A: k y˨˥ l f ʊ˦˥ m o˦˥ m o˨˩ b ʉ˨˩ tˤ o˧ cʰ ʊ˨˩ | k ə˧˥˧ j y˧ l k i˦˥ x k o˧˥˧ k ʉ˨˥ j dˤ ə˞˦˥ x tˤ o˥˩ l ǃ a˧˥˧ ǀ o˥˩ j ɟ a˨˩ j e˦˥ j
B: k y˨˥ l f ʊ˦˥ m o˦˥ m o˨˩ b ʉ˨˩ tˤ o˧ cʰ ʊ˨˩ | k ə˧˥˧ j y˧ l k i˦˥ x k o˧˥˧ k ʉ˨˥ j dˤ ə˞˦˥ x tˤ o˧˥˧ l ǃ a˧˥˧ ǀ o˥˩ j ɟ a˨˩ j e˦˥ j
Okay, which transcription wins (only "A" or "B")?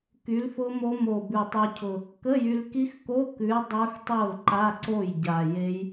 A